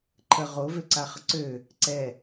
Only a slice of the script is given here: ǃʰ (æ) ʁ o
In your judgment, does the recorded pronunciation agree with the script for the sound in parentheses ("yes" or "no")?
no